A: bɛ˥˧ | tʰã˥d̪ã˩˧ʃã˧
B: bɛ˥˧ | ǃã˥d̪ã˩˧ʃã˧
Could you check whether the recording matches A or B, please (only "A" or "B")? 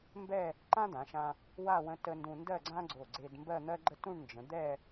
B